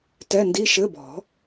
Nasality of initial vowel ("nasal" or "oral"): oral